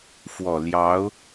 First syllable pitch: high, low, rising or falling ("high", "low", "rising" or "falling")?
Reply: low